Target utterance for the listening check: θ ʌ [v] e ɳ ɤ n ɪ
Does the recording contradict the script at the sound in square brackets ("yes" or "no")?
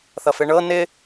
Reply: yes